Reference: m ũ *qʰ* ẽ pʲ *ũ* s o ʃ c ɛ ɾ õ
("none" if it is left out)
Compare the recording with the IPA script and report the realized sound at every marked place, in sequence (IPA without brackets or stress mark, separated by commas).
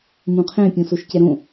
qʰ, õ